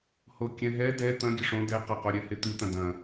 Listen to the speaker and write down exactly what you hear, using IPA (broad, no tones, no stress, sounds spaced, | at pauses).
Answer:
h o kʲ ɛ̃ ɦ ɛ d ɛ t̪ ɐ̃ ɡʲ ɘ ʂ õ d ɛ q ɐ q o ɾʲ ɛ h e t̪ ɨ t̪ ɐ̃ d ɐ̃